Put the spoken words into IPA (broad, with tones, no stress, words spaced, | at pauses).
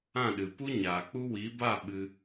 ã˦˨ɗɨ˨pu˦ ɲaː˨k͡pu˦ wi˨˦ba˦˨ ɓɨ˧